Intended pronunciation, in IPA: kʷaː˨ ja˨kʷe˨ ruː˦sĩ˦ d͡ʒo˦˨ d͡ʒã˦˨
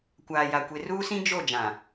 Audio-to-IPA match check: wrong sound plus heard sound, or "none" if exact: ã˦˨ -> ã˨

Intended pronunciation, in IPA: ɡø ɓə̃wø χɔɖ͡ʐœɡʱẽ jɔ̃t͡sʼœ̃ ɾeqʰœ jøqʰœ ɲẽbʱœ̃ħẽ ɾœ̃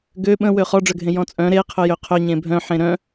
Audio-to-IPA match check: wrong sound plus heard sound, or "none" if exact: none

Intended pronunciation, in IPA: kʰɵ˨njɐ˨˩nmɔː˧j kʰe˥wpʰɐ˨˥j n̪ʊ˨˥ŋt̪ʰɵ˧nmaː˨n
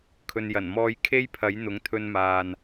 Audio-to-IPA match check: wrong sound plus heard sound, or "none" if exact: w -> j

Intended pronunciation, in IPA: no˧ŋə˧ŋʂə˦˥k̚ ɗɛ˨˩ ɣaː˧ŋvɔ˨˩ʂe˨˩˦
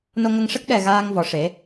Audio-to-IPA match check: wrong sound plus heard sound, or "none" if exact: none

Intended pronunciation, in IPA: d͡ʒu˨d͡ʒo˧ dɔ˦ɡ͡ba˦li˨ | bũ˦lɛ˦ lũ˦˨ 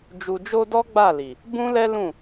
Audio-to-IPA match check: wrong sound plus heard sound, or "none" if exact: a˦ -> a˦˨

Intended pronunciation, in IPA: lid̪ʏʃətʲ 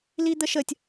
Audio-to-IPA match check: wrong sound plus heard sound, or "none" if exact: ʏ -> ə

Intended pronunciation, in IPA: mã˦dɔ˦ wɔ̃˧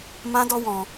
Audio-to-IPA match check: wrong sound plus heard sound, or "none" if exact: none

